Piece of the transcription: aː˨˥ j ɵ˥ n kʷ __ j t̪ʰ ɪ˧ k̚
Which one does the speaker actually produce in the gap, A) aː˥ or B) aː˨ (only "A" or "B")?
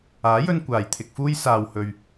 B